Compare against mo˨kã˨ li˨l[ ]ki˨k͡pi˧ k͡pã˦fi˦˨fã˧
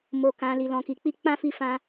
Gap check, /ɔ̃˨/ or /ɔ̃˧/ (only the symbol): ɔ̃˨